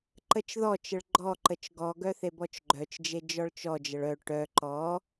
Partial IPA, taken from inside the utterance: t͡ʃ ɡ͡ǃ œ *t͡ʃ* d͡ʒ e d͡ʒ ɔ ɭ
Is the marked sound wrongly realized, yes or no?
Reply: no